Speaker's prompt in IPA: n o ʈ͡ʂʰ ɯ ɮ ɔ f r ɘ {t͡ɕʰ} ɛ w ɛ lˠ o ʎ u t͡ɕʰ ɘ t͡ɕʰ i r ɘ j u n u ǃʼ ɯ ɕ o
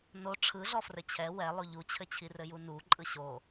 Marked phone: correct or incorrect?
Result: correct